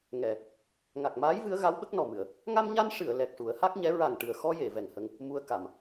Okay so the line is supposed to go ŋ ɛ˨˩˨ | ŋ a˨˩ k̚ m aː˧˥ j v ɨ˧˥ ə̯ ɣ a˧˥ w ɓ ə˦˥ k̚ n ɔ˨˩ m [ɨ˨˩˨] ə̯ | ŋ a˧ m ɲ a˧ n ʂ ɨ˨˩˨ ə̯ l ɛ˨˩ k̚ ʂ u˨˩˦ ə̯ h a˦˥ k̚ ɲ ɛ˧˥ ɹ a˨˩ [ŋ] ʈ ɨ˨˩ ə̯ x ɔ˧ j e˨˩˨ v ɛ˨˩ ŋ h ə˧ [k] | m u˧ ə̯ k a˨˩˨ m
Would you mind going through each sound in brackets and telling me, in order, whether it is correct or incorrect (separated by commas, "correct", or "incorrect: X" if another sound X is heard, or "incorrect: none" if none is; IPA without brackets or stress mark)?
correct, correct, incorrect: ŋ